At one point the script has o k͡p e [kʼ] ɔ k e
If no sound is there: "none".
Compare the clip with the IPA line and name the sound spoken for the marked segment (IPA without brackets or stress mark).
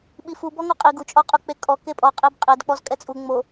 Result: kʼ